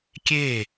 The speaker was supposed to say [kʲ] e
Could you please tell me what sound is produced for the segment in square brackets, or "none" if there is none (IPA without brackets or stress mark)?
kʲ